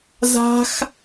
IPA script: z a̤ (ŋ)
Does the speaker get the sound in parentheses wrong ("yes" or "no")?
yes